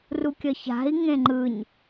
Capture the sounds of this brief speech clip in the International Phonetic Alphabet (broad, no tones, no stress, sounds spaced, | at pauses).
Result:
r u kʲ ʌ ç a̤ i̯ ŋ ẽ ŋ͡ǃ ɯ ɲ